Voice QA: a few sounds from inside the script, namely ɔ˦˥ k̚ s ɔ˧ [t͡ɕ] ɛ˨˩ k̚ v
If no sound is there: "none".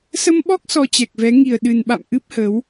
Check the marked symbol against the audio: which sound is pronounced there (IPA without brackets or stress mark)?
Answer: t͡ɕ